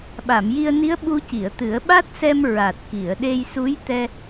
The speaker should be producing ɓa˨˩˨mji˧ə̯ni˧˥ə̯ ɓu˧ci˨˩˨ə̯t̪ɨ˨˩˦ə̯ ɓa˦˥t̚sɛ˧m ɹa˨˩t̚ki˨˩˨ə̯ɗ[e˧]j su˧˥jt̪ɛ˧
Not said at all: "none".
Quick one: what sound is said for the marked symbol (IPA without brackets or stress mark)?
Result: e˧